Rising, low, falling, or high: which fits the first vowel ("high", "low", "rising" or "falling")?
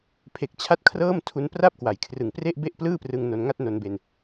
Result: low